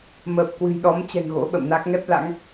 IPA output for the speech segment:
m əː˨˩ p̚ k w ɨ̤˨˩ j ɗ ɔ˨˦ m t͡ɕ ɛ̤˨˩ ŋ ɣ o̰˧˥ ɓ ə̰˧˨ m n a˦˥ k̚ ŋ ɛ˦˥ p̚ l a̰˧˥ ŋ

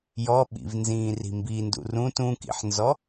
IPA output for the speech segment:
j ɔ ɓ ḭ v n z ĩː r i̤ m b i n d ṵ r ũ t ũ k ḭ ħ n z ɔ

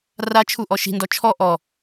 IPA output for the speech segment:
r a t͡ʃʰ u ʔ ɔ ʃ i̤ n d ɔ t͡ʃʰ ɔ ʔ ɔ

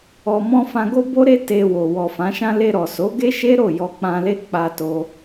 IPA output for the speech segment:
ɔ˨ m ɔ̃˧ f ã˧ ɡ o˦ b o˦ ɾ e˦ t e˧ w o˨ w ɔ˨ f ã˨˦ ʃ ã˦ l e˧ ɾ ɔ˨ s o˨˦ ɡ e˦ ʃ e˦ ɾ o˦˨ j ɔ˧ k͡p ã˧ l e˦ k͡p a˧ t o˧

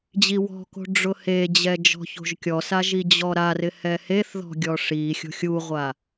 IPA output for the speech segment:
d͡ʑ i w ɔ̤ k o̤ ɖ͡ʐ ʊ h e d͡ʑ ɛ d͡ʒ ɔ̤ ç o̤ ʒ kʲ ɔ s a ʒ i d͡ʑ ɔ ɾ a r ɪ h ɛ h e θ ð ɔ̤ ɡʲ ɔ ʂ i xʲ o̤ xʲ u ʁʷ a

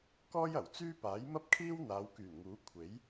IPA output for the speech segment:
k ɔː˥ j ɐ˨˩ w t͡s yː˥ p aː˨˥ j m ɐ˥ p̚ kʰ iː˥ w n̪ aː˨˧ w k yː˨˩ n ŋ uː˨˥ kʷʰ e˨˥ j

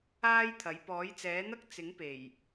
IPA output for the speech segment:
aː˥ j t̪ʰ ɐ˨˥ j p ɔː˨˥ j t͡s ɛː˨˥ n̪ ɐ˥ k̚ t͡s ɪ˨˥ ŋ p e˨˩ j

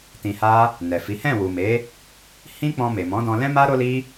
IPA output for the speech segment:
t ĩ˧ h a˦ | n ɛ˨ f i˨˦ h ɛ̃˦˨ w u˨ m e˨˦ | h ĩ˦ k͡p ɔ̃˧ m e˨ m ɔ̃˨˦ d ɔ̃˧ l ɛ̃˦ m a˦ ɾ o˦ l i˦

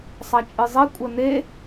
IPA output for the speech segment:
sˤ a t͡ʃʼ ɨ zˤ ɛ kʷʼ ɐ n e

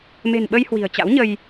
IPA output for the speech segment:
m e̤˨˩ n ɓ ə˧ j h w i̤˨˩ ə̯ t͡ɕ a̰˧˥ w ɲ ə˧ j

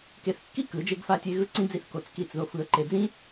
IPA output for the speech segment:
k e˧ θ kː i˦ k ɯ˨˦ d͡ʒ e˦ ɡ f a˦ tʲ e˦ ɣ ɯ˦ ǀ ĩ˦ d͡z i˦ θ k o˧ t͡s k i˦˨ t͡s ð o˦ f ɯ˧ ə̯ ǃ e˧ d͡z ĩ˦

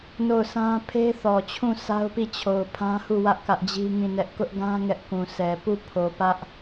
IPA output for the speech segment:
n o˦˨ ʊ̯ s ã˦ pʰ e˦ θ ɔ˨ t͡ɕʰ ũ˦˨ sʰ a˦ ʊ̯ p i˦˨ t͡ɕʰ o˨ ʊ̯ pʰ ã˦ h u˦˨ w ä˦ ʔ k ä˦ ʔ d͡ʑ i˦ ŋ ĩ˦˨ n ɛ˦ ʔ k ʊ˦ ʔ ɡ ã˦ ŋ ɛ˦ ʔ k ũ˨ s ɛ˨ p u˦˨ pʰ o˨ p ä˦ ʔ

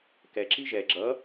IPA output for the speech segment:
k ɛ ǁ i ʒ ɛ ɡ͡ǁ ʌ

